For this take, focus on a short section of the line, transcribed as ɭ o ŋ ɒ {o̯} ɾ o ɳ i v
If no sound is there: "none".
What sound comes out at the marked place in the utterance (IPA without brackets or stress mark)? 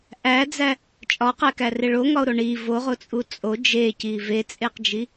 o̯